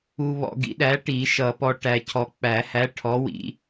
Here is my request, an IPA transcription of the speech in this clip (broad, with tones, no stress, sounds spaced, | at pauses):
u˧ β ɔ̰˧ ɡ ḭ˨˥ ɗ æ˨˥ ʈ i˨˩˦ ʃ ʌ˨˩˦ p ɔ˧ ʈ æ˧ cʰ ɔ˧ k͡p æ˨˩˦ h æ˨˥ ʈʰ ɔ˨˥ w ḭ˧